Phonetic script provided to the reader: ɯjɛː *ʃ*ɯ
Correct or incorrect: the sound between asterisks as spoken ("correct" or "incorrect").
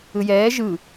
incorrect